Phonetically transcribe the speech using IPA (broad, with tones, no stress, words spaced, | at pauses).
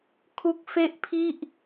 kʰu˦˥k̚fe˥˩ʔpʰi˥˩ʔ